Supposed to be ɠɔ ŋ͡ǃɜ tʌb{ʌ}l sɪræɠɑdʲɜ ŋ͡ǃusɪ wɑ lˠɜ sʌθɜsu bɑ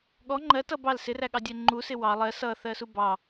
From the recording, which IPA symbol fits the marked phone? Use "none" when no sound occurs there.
ɑ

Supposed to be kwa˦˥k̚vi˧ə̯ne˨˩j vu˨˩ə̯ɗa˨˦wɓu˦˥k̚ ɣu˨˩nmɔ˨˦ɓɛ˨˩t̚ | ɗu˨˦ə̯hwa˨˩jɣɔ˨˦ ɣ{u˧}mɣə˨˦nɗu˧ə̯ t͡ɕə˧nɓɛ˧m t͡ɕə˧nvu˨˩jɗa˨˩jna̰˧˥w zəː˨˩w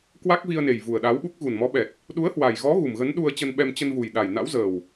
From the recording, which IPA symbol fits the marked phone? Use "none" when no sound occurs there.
u˨˩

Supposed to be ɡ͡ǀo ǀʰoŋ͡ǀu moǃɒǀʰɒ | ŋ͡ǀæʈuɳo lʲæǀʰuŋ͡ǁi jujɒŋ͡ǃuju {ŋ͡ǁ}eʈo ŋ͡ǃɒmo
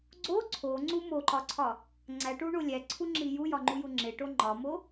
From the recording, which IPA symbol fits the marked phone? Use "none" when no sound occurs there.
ŋ͡ǁ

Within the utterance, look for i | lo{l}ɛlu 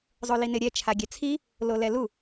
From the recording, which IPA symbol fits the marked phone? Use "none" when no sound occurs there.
l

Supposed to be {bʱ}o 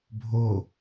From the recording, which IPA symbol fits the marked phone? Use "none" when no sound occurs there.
bʱ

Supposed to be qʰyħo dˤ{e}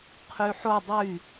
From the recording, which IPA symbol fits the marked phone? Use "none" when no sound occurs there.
y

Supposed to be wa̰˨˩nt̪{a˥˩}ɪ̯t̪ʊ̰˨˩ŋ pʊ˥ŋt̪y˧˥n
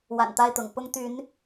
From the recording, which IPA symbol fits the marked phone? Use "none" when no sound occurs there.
a˥˩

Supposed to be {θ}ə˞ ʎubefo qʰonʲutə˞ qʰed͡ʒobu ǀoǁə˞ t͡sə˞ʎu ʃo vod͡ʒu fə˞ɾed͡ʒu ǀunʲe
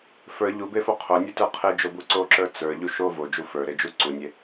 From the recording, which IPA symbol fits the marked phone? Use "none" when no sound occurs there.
f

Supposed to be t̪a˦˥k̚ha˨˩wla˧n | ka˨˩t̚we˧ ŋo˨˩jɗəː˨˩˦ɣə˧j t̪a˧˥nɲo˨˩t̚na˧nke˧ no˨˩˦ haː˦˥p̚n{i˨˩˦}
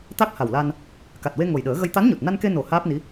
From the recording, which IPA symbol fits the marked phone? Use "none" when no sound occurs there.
i˧˥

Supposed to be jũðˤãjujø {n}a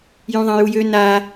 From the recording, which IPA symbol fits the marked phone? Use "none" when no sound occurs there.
n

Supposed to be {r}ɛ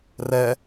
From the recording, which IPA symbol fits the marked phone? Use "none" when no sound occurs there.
r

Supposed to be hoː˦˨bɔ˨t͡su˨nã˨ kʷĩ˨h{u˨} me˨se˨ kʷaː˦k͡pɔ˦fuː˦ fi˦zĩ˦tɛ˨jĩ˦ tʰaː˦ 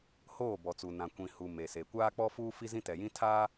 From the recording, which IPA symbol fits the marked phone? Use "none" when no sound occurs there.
u˨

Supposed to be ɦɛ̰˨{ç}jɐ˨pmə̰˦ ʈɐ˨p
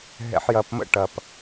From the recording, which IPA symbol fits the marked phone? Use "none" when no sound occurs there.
ħ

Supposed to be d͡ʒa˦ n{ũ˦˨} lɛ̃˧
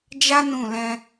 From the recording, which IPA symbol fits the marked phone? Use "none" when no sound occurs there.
ũ˦˨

